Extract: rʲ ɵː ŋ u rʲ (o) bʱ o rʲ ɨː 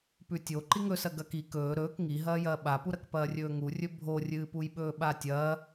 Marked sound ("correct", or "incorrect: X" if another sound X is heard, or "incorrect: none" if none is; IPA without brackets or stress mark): incorrect: ɵ